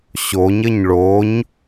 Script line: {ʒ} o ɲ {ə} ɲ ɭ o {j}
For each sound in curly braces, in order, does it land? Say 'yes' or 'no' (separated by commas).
no, yes, no